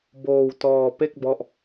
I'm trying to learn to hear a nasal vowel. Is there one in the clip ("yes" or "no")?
no